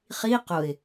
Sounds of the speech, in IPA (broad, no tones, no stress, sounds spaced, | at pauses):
χ i q ʊ ɪ̯